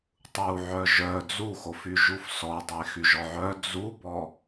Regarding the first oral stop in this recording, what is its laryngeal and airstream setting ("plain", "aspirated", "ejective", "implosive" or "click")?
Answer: plain